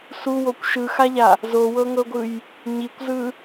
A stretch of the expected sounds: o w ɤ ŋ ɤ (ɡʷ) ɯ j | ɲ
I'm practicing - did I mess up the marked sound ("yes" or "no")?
no